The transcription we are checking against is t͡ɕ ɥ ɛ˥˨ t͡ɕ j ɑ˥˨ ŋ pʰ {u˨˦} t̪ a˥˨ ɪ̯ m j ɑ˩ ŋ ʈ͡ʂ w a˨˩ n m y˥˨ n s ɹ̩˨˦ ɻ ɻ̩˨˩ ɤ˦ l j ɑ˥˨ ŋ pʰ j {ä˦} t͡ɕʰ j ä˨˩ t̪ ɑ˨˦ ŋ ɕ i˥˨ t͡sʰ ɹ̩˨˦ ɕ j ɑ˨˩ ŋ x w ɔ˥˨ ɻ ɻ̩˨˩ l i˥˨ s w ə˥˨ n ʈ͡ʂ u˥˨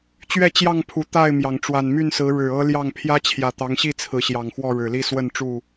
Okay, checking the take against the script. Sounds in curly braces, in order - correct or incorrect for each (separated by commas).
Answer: incorrect, correct